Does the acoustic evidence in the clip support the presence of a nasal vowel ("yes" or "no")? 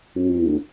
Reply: no